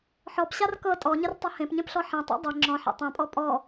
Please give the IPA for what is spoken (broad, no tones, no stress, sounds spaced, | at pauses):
ħ ɔ p ɕ a r k ɤ tʼ ɔ ɲ ə r tˤ ʌ h ẽ p ɲ ẽ p ɬ ɔ ħ ẽ tˤ ɛ̰ dˤ ɛ ŋ͡ǁ ɔ̃ ħ ḛ tˤ ɛ̃ pʼ ɔ pʼ ɔ